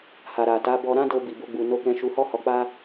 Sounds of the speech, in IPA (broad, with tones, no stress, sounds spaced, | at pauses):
h a˨ ɾ a˨ t a˨˦ b ɔ˧ ɾ ã˦ d o˧ b i˨ b o˧ ɡ͡b u˨ n o˧ k ɛ̃˧ ʃ u˧ h ɔ˦ h ɔ˧ k͡p a˦